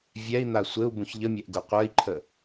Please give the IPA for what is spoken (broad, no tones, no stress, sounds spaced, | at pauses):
vʲ ɛ i̯ n̪ a sʷ ɘ u̯ b ũ ç ʎ ə mʲ ɛ ʔ ɡ u qʷ ə˞ i̯ ǃʰ ə